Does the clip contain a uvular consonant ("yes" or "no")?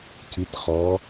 yes